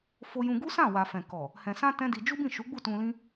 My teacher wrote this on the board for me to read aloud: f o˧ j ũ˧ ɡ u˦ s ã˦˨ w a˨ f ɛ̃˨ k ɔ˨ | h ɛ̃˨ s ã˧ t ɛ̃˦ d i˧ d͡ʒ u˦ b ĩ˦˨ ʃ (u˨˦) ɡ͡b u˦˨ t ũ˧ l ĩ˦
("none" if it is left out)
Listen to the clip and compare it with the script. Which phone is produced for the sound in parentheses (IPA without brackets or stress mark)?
u˨˦